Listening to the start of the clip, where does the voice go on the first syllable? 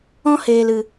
high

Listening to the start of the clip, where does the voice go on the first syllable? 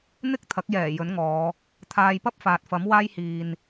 high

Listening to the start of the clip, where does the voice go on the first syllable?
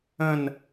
falling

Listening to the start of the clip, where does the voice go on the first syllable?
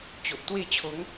low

